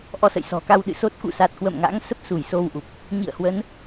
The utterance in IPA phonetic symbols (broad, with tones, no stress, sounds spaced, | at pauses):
ʔ ɔ˧ s ə̰˧˨ j s ɔ̤˨˩ k a˧ w ɗ ɨ̰˧˨ s o˦˥ t̚ k ṵ˧˨ s a˨˩ t̚ k w ə̰˧˨ m ŋ a̰˧˥ ŋ s ə˦˥ p̚ s u˧˩ j s o˧ w ʔ u˨˩ p̚ | ɲ ḭ˧˨ ə̯ h w ə˨˦ n